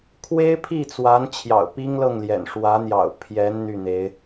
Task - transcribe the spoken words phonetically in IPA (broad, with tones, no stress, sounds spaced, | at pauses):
kʰ w e˥ ɪ̯ pʰ i˥˩ t͡s w a˧˥ n t͡ɕʰ j ɑ̰˨˩ ʊ̯ p i˥ ŋ l ɤ˥˩ ŋ l j ɛ̰˨˩ n ʂ w ä˧˥ n̪ j ɑ̰˨˩ ʊ̯ pʰ j ɛ˧˥ n n̪ y˥˩ n̪ e˧˥ ɪ̯